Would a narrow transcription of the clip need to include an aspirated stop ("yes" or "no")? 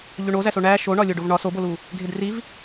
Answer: no